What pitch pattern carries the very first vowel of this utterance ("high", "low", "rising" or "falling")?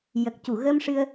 low